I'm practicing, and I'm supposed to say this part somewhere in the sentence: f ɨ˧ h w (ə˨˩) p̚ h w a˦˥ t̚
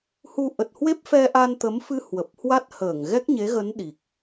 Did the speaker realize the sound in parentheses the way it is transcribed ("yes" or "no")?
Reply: yes